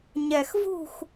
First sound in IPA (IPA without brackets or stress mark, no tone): ɲ